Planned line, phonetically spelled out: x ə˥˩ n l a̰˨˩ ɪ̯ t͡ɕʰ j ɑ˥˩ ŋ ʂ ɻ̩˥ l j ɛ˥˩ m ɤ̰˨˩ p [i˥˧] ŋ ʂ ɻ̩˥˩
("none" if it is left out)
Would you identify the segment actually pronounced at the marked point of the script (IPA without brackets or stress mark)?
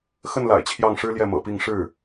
i˥˧